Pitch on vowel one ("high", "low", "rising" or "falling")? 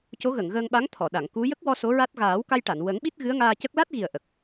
rising